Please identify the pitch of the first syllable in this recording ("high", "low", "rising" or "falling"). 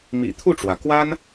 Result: low